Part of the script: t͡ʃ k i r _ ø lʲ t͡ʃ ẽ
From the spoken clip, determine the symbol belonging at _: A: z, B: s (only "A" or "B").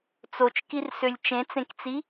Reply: B